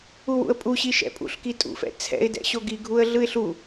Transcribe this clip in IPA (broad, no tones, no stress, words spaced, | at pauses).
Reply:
uwṵə̯pʼuɕi ʃɛ̰pʼṵɬki tʼṵfɛ̰ t͡sʰɛ̰ɪ̯dɛ̰ ɕoɡiɡʱuə̯ ɮɯɪ̯ɬu